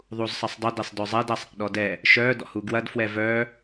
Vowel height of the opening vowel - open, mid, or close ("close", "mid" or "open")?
close